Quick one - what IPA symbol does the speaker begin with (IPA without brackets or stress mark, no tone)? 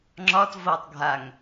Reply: ŋ͡ǁ